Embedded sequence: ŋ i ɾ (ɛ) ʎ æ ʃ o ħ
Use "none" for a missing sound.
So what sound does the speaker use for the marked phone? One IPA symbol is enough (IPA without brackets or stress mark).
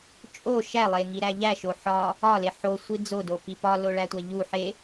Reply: æ